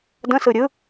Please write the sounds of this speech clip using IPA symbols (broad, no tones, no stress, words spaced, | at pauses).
də̃sɯ ɾʲɯ